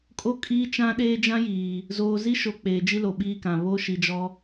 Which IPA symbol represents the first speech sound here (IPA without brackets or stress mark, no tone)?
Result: kʼ